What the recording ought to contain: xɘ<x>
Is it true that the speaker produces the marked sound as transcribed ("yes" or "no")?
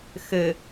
no